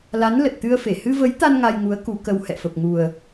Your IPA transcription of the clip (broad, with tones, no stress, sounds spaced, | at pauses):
l a˨˦ n l ə˨˩ t̚ t̪ ɨ˧ ə̯ f e˧˩ h ɨ˧ v ə˨˦ j t̪ a˧ n ŋ a˧ j ŋ u˨˦ ə̯ k u˨˦ k ə˧ w h ɛ̰˧˨ f ə˨˩ p̚ ŋ u˨˩ ə̯